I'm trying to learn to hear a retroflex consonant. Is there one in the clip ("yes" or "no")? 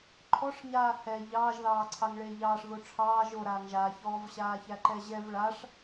yes